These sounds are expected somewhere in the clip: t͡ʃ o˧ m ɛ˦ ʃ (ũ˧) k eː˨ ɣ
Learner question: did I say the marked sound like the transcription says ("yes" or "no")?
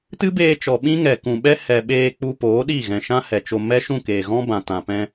no